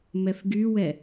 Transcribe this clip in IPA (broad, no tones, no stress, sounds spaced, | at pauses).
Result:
m ɛ f ɡ y w ɛ